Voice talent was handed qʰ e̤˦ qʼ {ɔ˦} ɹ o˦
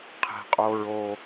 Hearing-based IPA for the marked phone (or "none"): o˦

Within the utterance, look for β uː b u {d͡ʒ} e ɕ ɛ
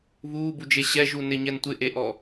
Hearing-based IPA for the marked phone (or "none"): d͡ʒ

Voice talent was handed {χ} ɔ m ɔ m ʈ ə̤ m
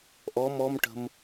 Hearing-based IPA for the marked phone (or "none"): ʔ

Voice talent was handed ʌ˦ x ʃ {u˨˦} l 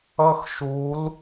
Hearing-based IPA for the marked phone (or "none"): u˨˦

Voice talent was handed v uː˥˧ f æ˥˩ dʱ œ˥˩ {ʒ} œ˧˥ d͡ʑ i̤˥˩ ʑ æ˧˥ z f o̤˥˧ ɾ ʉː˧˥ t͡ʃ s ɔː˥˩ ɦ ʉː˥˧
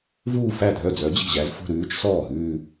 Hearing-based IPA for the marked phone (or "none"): d͡z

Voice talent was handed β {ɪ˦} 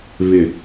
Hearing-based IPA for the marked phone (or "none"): ɪ˨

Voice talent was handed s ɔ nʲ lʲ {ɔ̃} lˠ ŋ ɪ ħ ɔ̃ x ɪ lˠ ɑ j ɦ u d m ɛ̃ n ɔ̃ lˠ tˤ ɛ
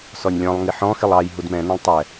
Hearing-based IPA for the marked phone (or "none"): ɔ̃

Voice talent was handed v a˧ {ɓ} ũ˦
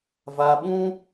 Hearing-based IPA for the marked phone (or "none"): ɓ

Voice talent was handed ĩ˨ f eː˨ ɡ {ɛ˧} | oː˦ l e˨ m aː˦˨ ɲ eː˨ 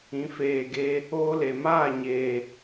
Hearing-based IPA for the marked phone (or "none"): e˧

